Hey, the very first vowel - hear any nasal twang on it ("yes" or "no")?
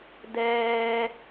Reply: no